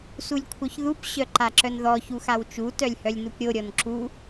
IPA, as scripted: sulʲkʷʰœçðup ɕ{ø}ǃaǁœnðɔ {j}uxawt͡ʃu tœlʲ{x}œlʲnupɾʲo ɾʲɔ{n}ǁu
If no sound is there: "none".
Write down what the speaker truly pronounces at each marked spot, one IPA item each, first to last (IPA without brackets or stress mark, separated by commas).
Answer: œ, ç, h, n